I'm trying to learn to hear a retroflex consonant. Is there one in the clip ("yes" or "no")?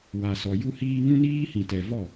no